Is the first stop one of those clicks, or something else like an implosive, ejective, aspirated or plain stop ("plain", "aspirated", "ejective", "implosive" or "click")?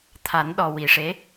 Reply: aspirated